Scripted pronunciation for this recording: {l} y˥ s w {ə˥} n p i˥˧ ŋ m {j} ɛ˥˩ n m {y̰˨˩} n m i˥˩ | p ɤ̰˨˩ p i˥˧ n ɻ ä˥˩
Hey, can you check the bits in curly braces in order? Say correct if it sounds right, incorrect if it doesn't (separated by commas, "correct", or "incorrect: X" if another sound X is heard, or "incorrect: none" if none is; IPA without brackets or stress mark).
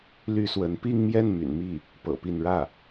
correct, incorrect: ə˧˥, correct, correct